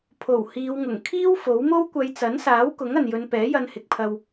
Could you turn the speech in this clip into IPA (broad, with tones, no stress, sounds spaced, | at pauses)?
pʰ o˨˩ w h iː˨˧ w ŋ ʊ˨˩ ŋ kʰ iː˥ w f o˨˥ w m o˥ w kʷ ɐ˨˧ j t͡s ɐ˨˥ n s aː˨˥ w k ʊ˨˥ ŋ ɐ˨ n j ɵ˨˧ n p ɛː˨˥ j ɐ˧ n h ɪ˨ k̚ pʰ ɐ˧ w